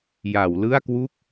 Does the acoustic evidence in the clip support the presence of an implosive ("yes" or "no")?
no